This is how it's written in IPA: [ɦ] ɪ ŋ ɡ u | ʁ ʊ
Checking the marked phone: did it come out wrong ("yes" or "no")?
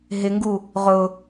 no